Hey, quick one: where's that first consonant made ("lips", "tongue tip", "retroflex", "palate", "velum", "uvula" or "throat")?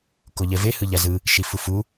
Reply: velum